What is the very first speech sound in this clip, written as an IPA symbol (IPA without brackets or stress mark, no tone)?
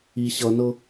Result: i